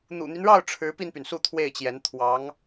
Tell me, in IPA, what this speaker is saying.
n̪ ṵ˨˩ n̪ y˦ n ɻ ɑ˥˩ ʊ̯ ʈ͡ʂʰ ɻ̩˧˥ p i˧ n p y˩ n s u˥˧ t̪ʰ w e˥˩ ɪ̯ t͡ɕ j ɛ˧˥ n t̪ʰ w ɑ˧˥ ŋ

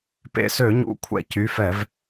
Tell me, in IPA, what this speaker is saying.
p ḛ˧˩ s ø˧˩˧ ɲ ṵ˨˥ kʷʰ ɛ̰˧˩ c y˩˧˩ f ɛ˧˩˧ v

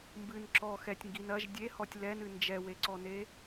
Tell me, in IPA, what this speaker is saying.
m b ɨ n ǁ ɔ x ɛ tʲ ŋ ɡ i n ɐ ʒ dʲ e h ɔ tʲ l ɛ n ɨ n d͡ʒ ɛ w e ǀ ɔ n e

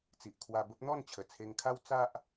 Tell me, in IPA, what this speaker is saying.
t͡s i˨ ʔ kʰ w a˧ b ə˦ p̚ n̪ ɔ˥˧ n t͡ɕʰ ə˨˩ t͡sʰ e˧ ŋ kʰ a˦ w t͡s a˦ ʔ

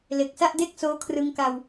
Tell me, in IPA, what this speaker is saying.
l e˨˩ k̚ s a˥˩ ʔ d e˥˩ k̚ s oː˦˥ kʰ r ɯ˧ ŋ k a˧ w

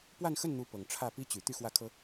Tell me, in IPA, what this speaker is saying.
p w a˥˧ n x ə˥˩ n n̪ u˧˥ p ɤ˨˩ ŋ ʈ͡ʂʰ ä˥˩ p i˥ t͡ɕ y˨˩ t̪ y˥˧ x w ä˥˩ kʰ ɤ˥

